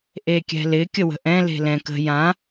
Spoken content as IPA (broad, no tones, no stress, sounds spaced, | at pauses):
ʔ e kʲ ɛ̤ l ɪ kʲ ə w ə̤ ʔ ɛ̃ l e̤ l ɛ̃ k ə̤ j ã